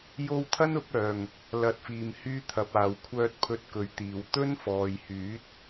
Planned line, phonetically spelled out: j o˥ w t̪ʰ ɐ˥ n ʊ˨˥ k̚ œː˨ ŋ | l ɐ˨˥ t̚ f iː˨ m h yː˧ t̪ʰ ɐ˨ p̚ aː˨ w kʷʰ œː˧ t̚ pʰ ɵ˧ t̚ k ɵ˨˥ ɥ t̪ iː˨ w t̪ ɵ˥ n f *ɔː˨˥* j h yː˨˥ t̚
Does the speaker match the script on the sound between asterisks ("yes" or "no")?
no